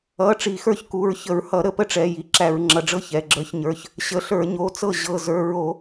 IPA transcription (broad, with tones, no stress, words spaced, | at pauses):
ʌ˩˧˩ ʈ͡ʂi˧˩˧xə˞˥˩çku˩˧˩ɹ çə˧˩˧ɹhʌ˧˩˧ ɾə˧˩˧pə˥˩ʈ͡ʂɛ˩˧˩ ji˩˧˩ǁæ˧˩˧ɹŋ͡ǁʌ˩˧˩ɖ͡ʐɤ˥˩ çɛ˩˧˩ɡ͡ǁə˞˧˩˧çɲə˞˩˧˩ç | ɕə˩˧˩ɬə˞˧˩˧ ɲo˩˧˩t͡sɤ˥˩ ʑɤ˩˧˩zə˞˩˧˩ɹo˧˩˧